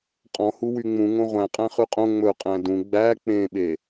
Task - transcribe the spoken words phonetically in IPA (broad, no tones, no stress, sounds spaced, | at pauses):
qʼ ɔ̃ h u w y ŋ͡m ũ ŋ õ ʁʷ æ̃ qʼ æ̃ χ ʉ qʼ õ ŋ͡m ɵ qʼ æ̃ d ũ ɡ͡b æ k͡p ẽ ɓ e